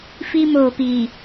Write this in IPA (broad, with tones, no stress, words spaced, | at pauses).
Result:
fi˦moː˨piː˨